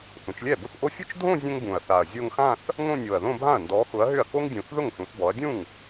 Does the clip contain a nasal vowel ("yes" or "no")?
yes